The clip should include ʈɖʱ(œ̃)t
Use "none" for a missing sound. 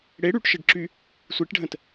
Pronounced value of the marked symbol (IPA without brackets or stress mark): ə̃